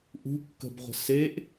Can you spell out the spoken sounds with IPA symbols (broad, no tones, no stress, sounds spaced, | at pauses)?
ʔ ṳ kː ə̤ b ʁʷ ə̤ s e ʔ